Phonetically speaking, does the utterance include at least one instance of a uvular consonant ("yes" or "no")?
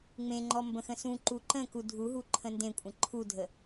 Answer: no